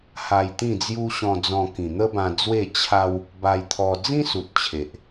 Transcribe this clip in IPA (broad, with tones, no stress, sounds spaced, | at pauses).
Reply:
h a˧ j t̪ ĩ˥˧ d͡z j u˦ ɕ ɔ̃˧ d͡z ɔ̃˧ k ĩ˨˩ n̪ ə˦ b ã˧ d͡z w e˥˧ t͡ɕʰ a˦ w | b a˧ j t̪ʰ ɔ˧ d͡z ĩ˦ s u˨ t̚ t͡ɕʰ e˨ ʔ